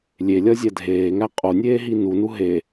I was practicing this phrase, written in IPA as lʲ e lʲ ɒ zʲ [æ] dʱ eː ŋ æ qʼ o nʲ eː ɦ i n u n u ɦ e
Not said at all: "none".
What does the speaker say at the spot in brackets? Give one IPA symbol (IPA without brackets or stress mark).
æ